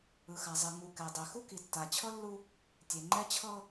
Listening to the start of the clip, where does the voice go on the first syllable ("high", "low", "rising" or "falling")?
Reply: low